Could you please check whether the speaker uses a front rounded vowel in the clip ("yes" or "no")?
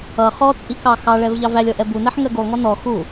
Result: no